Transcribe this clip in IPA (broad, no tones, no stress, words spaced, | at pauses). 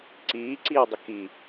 ǀiːǀiːwdˤə ki